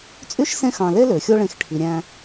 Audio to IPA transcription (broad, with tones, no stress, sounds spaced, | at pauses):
t͡sʼ y˥ ʃ s ẽ˦ x ɑ̃˨ l e˥ l ø˩ xʲ o˦ ɭ ẽ˨ x ʈʰ i˩ ɾʲ æ̃˨